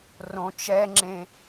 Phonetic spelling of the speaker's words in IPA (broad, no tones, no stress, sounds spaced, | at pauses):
r õ t͡ʃ ɛ ŋ͡ǁ ẽ